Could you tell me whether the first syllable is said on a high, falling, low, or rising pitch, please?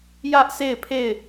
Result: high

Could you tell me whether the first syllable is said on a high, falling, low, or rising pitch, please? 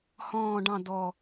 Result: low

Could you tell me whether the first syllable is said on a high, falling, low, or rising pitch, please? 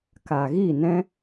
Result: low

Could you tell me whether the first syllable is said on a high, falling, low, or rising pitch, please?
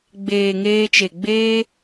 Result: low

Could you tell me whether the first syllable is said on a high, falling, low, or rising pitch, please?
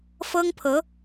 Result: high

